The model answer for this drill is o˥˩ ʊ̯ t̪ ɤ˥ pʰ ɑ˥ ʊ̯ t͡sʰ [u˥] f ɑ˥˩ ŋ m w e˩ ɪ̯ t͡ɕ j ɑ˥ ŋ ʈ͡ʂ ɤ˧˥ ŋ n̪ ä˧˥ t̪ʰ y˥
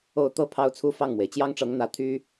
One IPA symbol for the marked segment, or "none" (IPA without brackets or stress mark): u˥